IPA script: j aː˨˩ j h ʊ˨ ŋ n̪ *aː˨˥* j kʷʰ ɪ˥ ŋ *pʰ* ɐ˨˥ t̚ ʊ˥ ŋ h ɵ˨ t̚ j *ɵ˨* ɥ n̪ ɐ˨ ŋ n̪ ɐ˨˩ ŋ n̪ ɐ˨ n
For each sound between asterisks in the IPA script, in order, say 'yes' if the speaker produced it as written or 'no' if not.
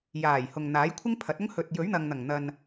yes, yes, no

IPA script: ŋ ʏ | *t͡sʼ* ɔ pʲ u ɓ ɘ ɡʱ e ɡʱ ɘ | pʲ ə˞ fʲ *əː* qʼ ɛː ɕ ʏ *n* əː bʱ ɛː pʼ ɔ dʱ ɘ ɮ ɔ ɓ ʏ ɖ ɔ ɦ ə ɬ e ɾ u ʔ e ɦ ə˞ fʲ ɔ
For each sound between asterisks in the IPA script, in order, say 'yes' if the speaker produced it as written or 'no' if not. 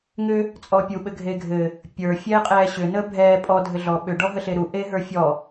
yes, no, yes

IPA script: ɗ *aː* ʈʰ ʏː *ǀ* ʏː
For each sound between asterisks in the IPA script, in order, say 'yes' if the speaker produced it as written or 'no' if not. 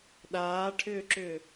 yes, no

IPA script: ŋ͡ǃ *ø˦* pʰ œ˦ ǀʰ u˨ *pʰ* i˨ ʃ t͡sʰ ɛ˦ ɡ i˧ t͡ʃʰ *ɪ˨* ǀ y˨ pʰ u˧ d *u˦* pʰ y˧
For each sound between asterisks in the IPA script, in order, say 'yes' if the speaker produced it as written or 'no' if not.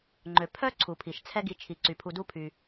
no, yes, no, yes

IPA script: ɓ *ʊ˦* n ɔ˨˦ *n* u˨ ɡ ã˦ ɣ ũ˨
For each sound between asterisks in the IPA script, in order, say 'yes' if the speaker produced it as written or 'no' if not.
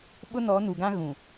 yes, yes

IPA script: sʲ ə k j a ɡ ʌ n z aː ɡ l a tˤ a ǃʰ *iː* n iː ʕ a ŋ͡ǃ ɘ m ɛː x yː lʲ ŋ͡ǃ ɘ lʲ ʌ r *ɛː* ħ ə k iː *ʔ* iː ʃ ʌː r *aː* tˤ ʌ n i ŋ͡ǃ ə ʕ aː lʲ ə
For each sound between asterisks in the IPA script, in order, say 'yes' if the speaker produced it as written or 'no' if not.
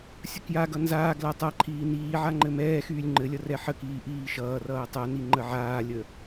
yes, no, yes, no

